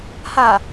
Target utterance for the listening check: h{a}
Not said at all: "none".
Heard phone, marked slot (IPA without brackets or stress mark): a